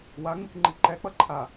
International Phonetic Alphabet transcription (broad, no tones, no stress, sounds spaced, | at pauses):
w a ŋ͡m ɯ k ŋ͡ǃ i ǃ ɛ k͡p ʌ ǃʰ a